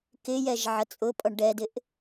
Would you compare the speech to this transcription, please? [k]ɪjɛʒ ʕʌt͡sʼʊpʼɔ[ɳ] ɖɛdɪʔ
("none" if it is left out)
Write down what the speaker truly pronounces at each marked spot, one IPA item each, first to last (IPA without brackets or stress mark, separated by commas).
k, ɳ